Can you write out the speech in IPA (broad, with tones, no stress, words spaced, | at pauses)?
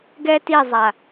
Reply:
ɡɛ˥ti˥˧ zˤa˥˧